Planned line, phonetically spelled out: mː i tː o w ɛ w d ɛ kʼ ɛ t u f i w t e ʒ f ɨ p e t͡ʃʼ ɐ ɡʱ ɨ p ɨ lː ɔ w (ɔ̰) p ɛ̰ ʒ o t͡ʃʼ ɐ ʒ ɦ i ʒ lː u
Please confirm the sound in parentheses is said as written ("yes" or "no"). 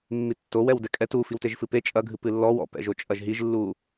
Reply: yes